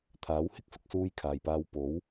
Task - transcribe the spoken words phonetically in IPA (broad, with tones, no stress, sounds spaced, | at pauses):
t̪ʰ aː˨˥ w h ɪ˥ k̚ s ʊ˨ k̚ s uː˧ j kʰ aː˨ j p aː˧ w p o˨˥ w